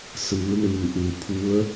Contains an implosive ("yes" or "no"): no